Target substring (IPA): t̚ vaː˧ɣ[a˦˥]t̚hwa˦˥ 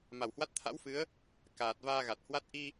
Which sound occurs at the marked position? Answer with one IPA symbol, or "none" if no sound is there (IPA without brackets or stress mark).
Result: a˨˩